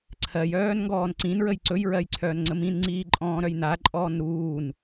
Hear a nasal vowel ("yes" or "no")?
yes